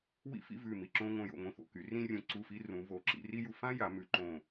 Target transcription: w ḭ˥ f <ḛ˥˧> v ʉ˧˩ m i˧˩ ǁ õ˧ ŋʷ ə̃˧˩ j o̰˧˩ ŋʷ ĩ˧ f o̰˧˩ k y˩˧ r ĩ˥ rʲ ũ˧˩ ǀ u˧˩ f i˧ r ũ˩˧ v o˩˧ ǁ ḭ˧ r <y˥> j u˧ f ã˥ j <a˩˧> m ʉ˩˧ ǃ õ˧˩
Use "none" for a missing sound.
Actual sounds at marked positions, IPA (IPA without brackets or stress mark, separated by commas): ḭ˥˧, i˥, a˩˧